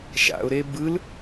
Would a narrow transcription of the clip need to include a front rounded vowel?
no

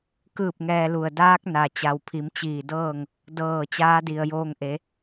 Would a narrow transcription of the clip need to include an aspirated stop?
yes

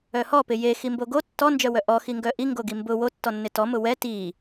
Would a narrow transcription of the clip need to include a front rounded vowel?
yes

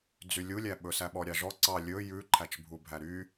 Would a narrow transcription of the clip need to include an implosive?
yes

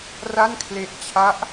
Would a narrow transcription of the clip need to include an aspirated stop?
yes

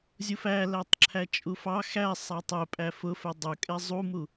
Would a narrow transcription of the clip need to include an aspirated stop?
yes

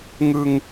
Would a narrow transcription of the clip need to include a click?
no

